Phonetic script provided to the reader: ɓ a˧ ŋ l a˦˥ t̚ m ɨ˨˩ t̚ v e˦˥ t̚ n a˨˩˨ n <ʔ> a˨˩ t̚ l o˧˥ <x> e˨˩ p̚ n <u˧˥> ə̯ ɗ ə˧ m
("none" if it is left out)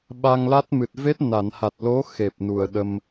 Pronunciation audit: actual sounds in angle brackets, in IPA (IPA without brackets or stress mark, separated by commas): h, x, u˨˩